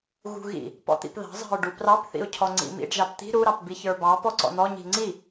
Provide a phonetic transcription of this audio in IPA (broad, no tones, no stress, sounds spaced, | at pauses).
ɣ ṳ ɣ ḭ | p ɔ̰ t̪ ḭ p ð ɑ̤ zˤ ɑ̤ ʊ̯ ɖ u p r ɑ p θ ḭ ʊ̯ cʰ ɔ ŋ͡ǀ ḭ m ḭ ɖ ʒ ɑ p t̪ i̤ ɾ u ɾ ɑ p b i ç ə˞ b ɑ p ɔ ǀ ɔ̰ n̪ ɔ ɲ i̤ ŋ͡ǀ i